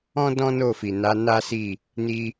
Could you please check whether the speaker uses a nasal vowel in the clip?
yes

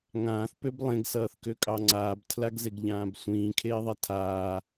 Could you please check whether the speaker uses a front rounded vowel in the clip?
yes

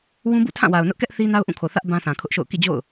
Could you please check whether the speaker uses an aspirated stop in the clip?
yes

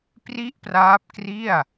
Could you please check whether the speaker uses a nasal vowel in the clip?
no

